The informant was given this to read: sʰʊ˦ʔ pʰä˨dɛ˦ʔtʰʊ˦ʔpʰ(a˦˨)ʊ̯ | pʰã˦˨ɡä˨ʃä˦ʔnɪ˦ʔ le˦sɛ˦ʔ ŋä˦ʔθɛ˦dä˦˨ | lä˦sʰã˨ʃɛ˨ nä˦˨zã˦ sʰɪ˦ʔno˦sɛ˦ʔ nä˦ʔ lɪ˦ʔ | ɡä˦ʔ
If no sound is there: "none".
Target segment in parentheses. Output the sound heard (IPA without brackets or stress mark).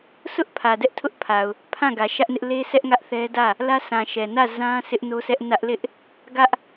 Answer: a˨